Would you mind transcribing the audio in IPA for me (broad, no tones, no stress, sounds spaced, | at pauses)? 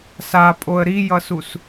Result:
s a pʼ o ə̯ ɾ i j ʌ s u s